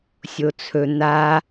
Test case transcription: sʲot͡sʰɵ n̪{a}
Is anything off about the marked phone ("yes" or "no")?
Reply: no